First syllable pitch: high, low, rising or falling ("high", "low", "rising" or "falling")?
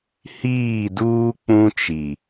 falling